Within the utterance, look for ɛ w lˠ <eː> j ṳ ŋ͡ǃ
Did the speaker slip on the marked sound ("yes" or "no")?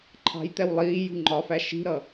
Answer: yes